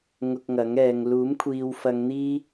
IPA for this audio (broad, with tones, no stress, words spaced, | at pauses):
ŋʊ˧k̚ŋɐ˨˥ŋɛː˨˧ŋ luː˨˥mkʷʰiː˨wfɐ˨˧ŋ n̪iː˥